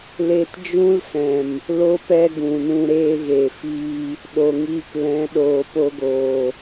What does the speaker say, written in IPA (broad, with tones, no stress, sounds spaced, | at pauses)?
l e˧ t d͡ʒ ũ˦ l s ɛ̃˨ m | l o˧ p ɛ˧ ɡ ũ˨ n ũ˧ ɾ eː˧ ɣ e˨ f iː˧ | ɗ o˨ ŋ iː˧ k l ɛ̃˨˦ ɗ oː˨ p o˧ ɡ oː˨